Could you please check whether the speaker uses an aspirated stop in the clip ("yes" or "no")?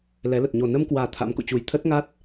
yes